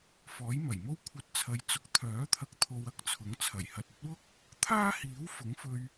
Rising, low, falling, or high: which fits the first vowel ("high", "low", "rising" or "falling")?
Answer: rising